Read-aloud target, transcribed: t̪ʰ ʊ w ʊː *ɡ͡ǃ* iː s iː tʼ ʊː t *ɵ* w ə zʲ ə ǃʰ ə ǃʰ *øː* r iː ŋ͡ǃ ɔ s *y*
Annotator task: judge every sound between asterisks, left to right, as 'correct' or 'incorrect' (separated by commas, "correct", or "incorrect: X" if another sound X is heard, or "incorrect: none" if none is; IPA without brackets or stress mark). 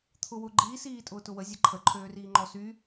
correct, incorrect: ʊ, correct, correct